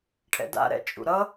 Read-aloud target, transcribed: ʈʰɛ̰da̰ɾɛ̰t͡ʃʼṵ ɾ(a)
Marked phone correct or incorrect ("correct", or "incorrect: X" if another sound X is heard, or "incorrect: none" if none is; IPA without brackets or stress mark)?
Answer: incorrect: ʌ